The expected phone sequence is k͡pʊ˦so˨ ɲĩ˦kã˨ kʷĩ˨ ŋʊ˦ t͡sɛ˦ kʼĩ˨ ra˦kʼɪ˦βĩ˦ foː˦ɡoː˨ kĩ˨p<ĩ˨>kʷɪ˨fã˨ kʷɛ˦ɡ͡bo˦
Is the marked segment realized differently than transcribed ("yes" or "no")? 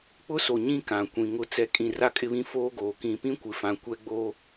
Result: yes